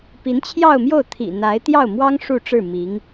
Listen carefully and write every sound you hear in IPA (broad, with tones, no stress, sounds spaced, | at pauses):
p i˧˥ n t͡ɕʰ j ɑ˥˧ ʊ̯ m j o˥˩ ʊ̯ t̪ʰ ḭ˨˩ n̪ a˧˥ ɪ̯ t̪ j ɑ˥˩ ʊ̯ m w ɑ˥ ŋ ʂ u˥˧ ʈ͡ʂ ɻ̩˥˩ m i˧˥ ŋ